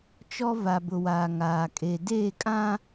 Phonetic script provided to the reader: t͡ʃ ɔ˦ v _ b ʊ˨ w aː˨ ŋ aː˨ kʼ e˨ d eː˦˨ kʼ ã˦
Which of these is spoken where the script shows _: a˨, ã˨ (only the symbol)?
a˨